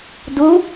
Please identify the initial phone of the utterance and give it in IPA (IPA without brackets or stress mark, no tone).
d